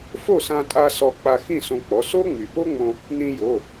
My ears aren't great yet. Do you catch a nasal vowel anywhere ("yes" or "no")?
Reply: yes